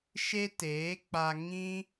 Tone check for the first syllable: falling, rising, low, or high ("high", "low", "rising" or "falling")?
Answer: high